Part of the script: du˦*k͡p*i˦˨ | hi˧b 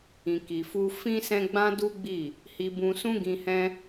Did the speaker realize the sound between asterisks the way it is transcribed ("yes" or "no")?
no